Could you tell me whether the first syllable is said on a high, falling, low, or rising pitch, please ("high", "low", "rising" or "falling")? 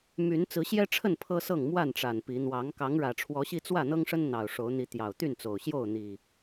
rising